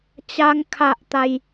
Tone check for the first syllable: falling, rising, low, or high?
high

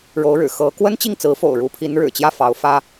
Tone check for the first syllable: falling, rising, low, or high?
rising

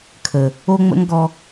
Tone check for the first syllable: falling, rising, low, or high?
low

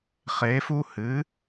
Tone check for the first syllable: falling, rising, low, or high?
rising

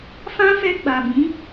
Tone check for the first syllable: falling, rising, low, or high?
high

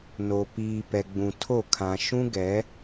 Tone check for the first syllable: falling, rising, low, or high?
low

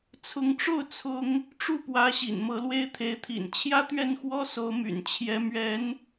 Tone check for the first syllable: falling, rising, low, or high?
rising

